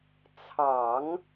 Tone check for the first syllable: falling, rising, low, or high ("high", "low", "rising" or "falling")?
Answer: low